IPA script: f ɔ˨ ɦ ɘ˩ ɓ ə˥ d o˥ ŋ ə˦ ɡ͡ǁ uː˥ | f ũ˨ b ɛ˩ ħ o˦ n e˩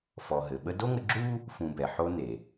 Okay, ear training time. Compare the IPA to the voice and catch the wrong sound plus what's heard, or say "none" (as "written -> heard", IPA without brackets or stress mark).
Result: none